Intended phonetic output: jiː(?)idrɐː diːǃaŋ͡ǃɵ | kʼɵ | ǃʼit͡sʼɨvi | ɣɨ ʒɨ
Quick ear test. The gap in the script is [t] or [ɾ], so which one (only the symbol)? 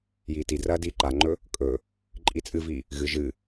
t